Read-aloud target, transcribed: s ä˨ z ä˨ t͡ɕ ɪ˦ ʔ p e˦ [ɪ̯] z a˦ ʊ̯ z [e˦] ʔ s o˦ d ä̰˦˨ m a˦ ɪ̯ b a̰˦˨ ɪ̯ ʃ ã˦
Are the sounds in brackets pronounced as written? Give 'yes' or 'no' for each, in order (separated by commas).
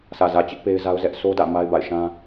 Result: yes, no